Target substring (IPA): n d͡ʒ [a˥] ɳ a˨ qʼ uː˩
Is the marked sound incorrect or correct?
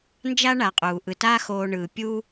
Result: correct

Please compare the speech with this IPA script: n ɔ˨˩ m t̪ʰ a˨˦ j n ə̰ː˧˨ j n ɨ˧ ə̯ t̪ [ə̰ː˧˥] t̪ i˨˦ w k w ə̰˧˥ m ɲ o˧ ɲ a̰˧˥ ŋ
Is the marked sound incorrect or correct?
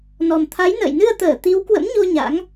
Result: incorrect: əː˧˩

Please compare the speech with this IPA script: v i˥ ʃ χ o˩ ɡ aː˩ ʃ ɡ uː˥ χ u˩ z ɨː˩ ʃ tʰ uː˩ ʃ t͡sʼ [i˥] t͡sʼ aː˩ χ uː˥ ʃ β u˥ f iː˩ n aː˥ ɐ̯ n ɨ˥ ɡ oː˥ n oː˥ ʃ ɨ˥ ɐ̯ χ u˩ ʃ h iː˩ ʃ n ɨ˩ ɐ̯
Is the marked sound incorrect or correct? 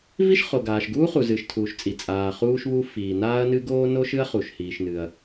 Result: incorrect: i˩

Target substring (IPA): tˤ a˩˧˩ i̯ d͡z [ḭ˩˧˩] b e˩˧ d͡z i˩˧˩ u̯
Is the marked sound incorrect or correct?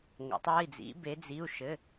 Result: incorrect: ḭ˩˧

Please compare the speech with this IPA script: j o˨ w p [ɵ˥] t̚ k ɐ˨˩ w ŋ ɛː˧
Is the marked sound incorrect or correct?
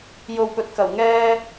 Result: incorrect: ɵ˨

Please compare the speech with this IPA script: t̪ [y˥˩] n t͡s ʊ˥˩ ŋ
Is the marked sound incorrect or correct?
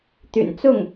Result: incorrect: y̰˨˩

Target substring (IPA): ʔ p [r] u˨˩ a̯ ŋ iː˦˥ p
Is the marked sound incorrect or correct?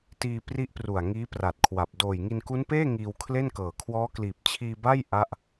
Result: correct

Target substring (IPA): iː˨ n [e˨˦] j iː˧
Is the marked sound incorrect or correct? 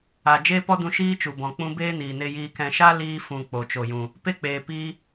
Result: incorrect: e˧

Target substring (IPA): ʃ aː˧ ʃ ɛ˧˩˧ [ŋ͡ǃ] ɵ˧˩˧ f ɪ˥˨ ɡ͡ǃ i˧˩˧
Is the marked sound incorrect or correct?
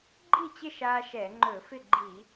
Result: correct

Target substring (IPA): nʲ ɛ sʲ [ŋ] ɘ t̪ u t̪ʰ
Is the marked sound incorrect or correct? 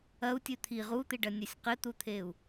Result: incorrect: q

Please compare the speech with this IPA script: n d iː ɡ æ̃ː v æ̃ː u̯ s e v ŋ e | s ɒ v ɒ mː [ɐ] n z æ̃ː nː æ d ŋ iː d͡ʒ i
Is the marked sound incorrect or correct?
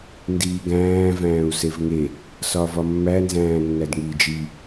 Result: incorrect: æ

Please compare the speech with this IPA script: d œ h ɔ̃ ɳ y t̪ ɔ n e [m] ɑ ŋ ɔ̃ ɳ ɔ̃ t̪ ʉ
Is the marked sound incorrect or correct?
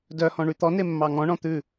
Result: incorrect: mː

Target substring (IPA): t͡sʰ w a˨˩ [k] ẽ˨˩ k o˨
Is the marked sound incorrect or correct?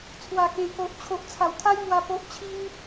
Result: correct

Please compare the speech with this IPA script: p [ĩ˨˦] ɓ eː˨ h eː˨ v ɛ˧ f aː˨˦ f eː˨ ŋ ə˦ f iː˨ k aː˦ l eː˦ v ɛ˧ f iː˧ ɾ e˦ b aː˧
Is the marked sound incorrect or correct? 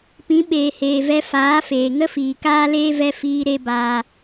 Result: correct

